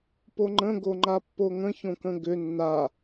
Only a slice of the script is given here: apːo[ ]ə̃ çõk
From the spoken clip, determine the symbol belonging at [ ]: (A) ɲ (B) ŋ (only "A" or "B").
B